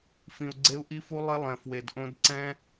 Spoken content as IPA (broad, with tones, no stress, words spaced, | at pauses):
fĩ˨u̯ɡ͡ǀe˦u̯ ʔi˦fu˦ lˠɪ˦lˠɛ̃˨ fwe˨dʔõ˦dǀɛ̃˦